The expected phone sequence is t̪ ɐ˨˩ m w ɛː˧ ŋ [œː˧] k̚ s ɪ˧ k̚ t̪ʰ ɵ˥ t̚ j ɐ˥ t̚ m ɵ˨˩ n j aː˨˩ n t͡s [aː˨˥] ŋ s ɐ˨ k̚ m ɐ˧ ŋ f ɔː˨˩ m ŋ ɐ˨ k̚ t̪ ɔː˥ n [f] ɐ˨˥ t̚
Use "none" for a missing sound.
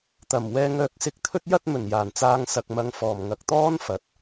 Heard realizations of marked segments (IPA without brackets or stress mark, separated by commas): œː˧, aː˧, f